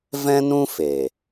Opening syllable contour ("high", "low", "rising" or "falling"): high